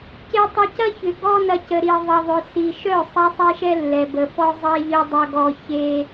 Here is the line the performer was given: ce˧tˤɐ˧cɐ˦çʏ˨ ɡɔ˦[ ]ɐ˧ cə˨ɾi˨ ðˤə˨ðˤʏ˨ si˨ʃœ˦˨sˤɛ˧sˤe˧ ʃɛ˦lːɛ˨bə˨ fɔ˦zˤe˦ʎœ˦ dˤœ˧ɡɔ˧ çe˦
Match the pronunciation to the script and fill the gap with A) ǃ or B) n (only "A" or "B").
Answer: B